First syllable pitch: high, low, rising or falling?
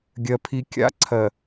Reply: high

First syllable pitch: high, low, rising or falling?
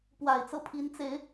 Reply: low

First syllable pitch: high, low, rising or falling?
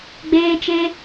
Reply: high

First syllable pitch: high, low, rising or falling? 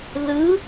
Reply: rising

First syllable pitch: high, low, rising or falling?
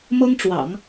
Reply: high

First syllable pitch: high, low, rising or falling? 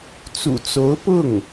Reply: low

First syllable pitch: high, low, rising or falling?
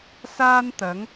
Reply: high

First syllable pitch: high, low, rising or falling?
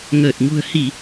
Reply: low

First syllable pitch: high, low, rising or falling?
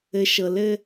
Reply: low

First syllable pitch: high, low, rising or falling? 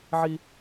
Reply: high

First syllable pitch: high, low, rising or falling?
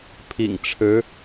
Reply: low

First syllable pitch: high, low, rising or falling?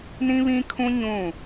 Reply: high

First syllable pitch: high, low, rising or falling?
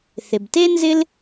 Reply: low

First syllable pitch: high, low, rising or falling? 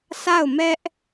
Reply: falling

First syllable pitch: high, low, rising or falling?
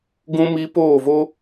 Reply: high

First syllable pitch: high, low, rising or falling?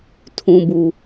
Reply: low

